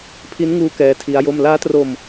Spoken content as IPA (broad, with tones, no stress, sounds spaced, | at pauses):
pʰ i˦˥ n ŋ uː˦˥ k ɛː˦˥ tʰ i˦˥ a̯ j o˥˩ m l aː˦˥ t r o˧ m